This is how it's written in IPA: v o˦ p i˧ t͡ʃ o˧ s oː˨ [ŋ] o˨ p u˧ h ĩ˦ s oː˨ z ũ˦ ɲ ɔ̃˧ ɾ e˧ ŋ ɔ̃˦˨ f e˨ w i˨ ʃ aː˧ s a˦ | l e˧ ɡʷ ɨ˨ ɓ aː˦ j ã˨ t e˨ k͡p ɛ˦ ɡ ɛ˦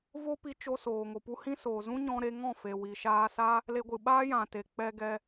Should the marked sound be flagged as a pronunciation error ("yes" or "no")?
no